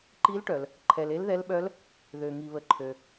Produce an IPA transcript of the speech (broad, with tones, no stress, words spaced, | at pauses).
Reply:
ǃi˧˥lʈœ˩l | ǃʰɛ˩le˧˥lðɛ˧˥lɓœ˧˥l | ðø˩ŋi˩βə˩ ǃʰø˩